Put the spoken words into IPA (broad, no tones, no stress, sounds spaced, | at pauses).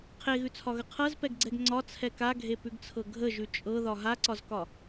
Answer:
qʰ e ɣ ʉ t͡sʰ ɒ ɣ ə qʰ ɤ z p ɛ ɡ ɡ͡ǀ ɛ ɡ ŋ͡ǀ ɒ t͡sʰ ɛ k a ɡʱ e p ʉ ɡ t͡sʰ ɤ ɡʱ ə ʒ ʉ t͡ʃʼ ɤ ð ɒ ɦ a ǀ ɒ z k ɒ